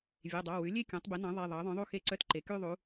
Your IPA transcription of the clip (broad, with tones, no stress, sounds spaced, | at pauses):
vʲ e˩˧˩ dˤ ɑ˩˧˩ w ʉ˩˥ lʲ e˥˧ kʲ ɔ̃˩˥ tˤ b e˩˥ n ɑ̃˩˥ ðˤ e˩˧˩ ðˤ ɑ˩˥ ðˤ œ̃˩˥ ðˤ u˥˧ x e˥˧ ǀ œ˥˧ t ǃ e˩˥ k y˥˧ ðˤ u˩˥